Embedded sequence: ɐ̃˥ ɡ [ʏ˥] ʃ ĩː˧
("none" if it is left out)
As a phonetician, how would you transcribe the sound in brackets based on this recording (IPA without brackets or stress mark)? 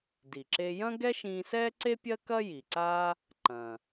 ɛ˥